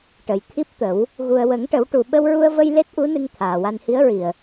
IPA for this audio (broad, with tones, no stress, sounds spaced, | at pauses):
ʈ ə˨˩ j t̪ʰ i˦˥ p̚ t̪ ə˨˩˦ w | ɣ u˨˩ ə̯ w ə˨˩˦ ŋ ʈ ə˨˩˦ w ʈ u˨˩ ɓ ə˧ w ɹ u˧ ə̯ v ə˧ j l e˦˥ t̚ ʔ u˧˥ n ɨ˧ ŋ t̪ʰ aː˨˩ w a˧ n h i˧˥ ə̯ ɹ i˨˩ ə̯